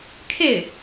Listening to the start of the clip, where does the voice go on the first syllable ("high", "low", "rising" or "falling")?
falling